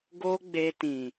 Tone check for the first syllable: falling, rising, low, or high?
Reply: high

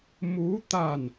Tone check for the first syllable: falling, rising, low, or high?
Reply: rising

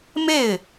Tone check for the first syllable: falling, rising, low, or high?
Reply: falling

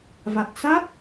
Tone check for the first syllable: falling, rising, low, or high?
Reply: low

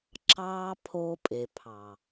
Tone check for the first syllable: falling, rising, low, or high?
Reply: high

